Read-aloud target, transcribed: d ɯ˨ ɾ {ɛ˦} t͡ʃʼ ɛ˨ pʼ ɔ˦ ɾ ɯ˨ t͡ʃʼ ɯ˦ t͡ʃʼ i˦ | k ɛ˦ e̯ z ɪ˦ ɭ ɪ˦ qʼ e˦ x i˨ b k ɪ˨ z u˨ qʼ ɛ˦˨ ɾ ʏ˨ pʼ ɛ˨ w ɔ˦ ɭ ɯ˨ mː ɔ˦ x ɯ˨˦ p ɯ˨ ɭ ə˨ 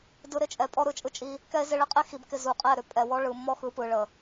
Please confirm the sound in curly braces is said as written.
no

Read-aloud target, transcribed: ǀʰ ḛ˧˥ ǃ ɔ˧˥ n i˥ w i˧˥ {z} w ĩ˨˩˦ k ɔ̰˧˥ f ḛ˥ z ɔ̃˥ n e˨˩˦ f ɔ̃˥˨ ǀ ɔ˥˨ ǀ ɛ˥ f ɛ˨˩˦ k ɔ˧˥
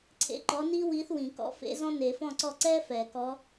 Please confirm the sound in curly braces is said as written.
no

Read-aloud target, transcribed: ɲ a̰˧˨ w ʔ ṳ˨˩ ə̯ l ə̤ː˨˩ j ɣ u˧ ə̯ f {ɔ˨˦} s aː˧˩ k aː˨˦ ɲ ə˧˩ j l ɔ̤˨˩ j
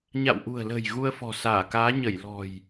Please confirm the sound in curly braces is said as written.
no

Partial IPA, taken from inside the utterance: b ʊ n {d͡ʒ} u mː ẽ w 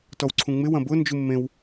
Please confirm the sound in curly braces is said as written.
yes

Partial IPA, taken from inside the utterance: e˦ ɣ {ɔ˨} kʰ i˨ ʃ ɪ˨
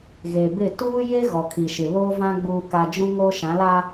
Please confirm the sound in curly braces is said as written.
yes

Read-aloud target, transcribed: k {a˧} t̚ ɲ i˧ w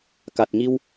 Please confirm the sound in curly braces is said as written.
no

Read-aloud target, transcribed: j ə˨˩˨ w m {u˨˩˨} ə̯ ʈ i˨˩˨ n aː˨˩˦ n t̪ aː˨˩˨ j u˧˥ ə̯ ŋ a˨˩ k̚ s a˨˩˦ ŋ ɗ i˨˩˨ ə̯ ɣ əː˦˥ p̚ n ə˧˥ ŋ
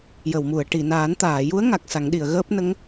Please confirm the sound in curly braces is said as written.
yes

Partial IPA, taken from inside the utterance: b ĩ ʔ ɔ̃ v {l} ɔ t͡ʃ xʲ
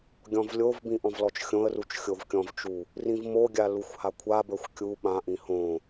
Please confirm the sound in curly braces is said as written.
yes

